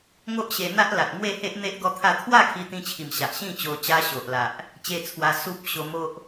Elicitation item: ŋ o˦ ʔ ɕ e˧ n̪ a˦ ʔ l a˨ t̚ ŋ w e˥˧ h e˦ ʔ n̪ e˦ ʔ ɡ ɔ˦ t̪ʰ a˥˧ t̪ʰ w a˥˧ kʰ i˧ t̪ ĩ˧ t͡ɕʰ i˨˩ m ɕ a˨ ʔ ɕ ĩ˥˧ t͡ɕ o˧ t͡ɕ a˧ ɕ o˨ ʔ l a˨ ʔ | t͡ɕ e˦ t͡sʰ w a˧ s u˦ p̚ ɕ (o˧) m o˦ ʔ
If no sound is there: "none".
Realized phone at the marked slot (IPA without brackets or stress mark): o˧